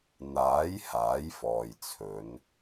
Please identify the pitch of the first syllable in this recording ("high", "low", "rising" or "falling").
rising